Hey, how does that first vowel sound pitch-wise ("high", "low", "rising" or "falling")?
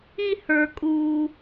high